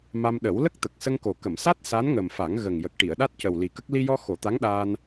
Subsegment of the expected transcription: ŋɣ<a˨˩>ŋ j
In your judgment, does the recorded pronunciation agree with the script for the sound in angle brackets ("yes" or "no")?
no